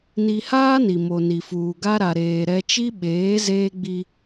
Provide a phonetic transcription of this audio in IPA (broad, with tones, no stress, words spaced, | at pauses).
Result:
ni˨haː˦ ni˨mo˨ni˨fuː˨ ɡa˦ɾa˨ɾeː˨ ɾɛ˦ t͡ʃi˦ɓeː˨˦ zeː˦ɡ͡bi˦